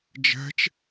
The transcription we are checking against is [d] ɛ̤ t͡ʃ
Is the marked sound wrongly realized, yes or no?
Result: yes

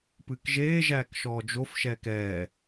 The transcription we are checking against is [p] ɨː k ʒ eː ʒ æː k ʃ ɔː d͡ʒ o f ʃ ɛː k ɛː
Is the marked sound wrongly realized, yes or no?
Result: no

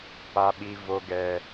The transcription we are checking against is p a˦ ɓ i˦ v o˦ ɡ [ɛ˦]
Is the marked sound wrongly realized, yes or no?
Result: no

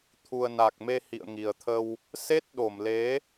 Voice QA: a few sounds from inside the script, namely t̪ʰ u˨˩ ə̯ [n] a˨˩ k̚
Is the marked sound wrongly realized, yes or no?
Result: no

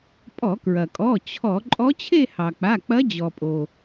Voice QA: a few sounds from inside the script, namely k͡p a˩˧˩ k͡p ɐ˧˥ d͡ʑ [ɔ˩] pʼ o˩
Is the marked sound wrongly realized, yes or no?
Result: no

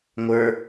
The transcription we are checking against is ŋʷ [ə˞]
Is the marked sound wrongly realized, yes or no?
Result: no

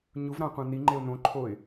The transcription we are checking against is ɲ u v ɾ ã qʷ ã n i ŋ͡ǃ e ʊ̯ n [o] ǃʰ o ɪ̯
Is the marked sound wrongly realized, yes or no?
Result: yes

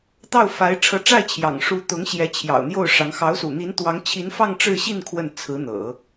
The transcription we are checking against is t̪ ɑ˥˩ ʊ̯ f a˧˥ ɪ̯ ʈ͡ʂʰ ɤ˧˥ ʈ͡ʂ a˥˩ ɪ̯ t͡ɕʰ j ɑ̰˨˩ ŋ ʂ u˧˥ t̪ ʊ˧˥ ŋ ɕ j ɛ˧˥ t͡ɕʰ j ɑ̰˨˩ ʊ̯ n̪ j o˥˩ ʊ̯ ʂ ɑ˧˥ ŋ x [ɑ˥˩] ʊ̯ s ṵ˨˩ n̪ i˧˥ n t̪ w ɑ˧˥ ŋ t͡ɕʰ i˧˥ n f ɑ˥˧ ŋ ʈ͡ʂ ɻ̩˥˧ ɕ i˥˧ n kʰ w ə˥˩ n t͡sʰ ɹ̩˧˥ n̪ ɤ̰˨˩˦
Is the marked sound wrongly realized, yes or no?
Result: yes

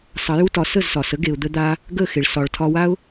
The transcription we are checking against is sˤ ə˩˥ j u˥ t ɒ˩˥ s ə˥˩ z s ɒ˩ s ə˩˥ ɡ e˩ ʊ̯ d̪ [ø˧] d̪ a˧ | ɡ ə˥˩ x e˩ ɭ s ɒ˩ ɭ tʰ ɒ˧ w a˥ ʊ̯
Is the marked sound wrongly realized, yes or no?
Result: yes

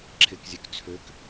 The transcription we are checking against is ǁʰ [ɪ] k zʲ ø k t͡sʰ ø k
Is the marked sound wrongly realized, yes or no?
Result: no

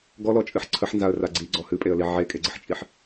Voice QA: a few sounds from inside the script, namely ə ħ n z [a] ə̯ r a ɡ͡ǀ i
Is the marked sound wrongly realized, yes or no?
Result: no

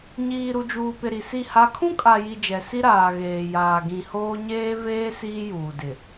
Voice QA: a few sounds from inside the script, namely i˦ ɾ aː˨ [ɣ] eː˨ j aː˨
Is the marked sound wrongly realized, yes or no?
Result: no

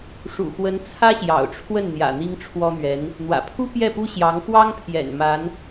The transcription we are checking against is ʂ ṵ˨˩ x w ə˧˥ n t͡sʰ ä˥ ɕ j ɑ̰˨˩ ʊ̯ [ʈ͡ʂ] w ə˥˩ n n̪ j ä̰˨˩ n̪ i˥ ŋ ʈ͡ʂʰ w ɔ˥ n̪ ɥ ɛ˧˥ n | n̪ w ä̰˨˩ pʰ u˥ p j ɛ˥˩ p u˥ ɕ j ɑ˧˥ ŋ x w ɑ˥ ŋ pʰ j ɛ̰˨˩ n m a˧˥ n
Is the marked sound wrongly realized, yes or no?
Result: yes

